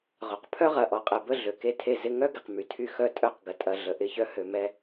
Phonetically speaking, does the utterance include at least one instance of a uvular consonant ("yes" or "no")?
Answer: yes